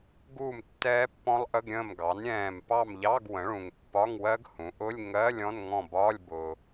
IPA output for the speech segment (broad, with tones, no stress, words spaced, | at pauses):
ɡuː˦˨m tːɛː˦˥pːɔ̃˦˥lˠʔə˧˥˧ɡ ɾʲə̃ː˦˨mɡɑ˩˥n ɾʲɛ̃ː˦˨m pɑ˦˨mʎɑ˧˥˧ɡ wə̃˩˥ɭũ˨ŋ pːɒ˧˥˧ŋwɜ˦˥ɡhũ˩˥ʔʊ˧˥˧lʲ ŋɜ˧˥˧lʲ ɔ̃˧˥˧nŋɔ̃˦˨bɒː˧˥˧lʲ bʊː˨